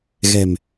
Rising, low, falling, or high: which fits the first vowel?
low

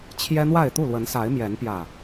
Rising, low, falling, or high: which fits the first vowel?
high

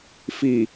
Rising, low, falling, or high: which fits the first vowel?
low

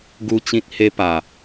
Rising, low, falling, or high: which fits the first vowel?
high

